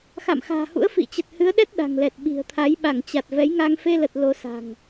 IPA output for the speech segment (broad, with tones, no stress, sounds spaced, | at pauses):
x a̰˧˨ m x a̤ː˨˩ h ṵ˧˥ ə̯ f ḭ˧˨ t͡ɕ ə˨˩ t̚ h ɨ˨˦ ə̯ ɗ ɛ˦˥ t̚ ɗ a̤˨˩ ŋ l ɛ˨˩ t̚ ɓ i̤˨˩ ə̯ t̪ʰ a˨˦ j ɓ a˧˩ ŋ t͡ɕ a˨˩ t̚ v ɛ˨˦ j ŋ a˧ ŋ f e˧ l ə˨˩ t̚ l o˨˦ s a̤˨˩ ŋ